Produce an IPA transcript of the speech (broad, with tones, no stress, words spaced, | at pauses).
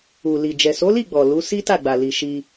u˨li˨ d͡ʒɛ˨so˨˦li˦˨ɡ͡bɔ˨ lu˨˦ si˦ta˦˨ɡ͡ba˨ li˨ ʃi˧